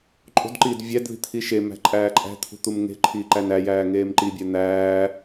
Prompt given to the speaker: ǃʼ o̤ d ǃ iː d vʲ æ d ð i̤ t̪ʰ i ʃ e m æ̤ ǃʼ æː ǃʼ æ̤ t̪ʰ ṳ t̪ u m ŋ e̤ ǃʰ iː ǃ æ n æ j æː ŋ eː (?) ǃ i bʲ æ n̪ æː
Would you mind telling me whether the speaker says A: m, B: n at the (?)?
A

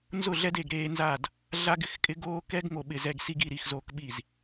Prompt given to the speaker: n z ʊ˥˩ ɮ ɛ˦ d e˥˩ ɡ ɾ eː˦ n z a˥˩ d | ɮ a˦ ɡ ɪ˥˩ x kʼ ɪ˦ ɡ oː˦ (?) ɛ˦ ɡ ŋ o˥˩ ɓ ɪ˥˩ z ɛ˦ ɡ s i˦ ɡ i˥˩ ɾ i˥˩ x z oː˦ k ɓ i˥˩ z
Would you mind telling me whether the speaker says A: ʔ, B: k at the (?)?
B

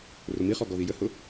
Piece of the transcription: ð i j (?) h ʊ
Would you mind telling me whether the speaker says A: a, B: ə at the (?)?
B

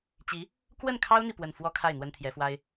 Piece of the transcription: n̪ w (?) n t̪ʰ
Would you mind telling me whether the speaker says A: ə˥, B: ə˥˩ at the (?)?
A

